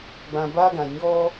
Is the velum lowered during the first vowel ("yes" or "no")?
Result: yes